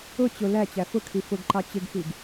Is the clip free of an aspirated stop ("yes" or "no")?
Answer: no